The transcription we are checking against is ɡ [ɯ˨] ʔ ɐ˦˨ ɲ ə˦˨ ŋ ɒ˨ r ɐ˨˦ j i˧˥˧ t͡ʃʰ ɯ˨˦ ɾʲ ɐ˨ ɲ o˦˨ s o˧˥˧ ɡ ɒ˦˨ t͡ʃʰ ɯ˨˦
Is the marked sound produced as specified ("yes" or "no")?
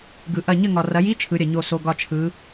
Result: yes